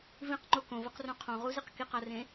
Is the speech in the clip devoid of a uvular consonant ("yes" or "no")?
no